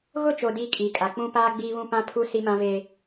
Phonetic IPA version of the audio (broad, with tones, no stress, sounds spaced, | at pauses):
ɣ ʊ˦˨ t͡ʃ o˨ d iː˦ kʼ iː˨ kʼ a˨ k͡p ũ˦ p aː˦ ɡ͡b iː˦ β ũ˦ p ã˦ pʰ u˦ s i˦ m ã˦ v eː˦